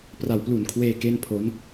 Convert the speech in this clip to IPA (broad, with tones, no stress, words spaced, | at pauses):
pra˨˩wplu˨˩nkʰweː˧ ke˥˩npʰo˦˥n